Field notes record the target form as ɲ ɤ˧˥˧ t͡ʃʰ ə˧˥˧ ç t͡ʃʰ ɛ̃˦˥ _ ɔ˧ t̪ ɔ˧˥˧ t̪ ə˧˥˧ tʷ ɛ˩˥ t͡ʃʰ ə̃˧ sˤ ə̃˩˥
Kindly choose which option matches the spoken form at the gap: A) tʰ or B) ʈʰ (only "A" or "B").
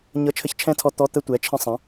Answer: A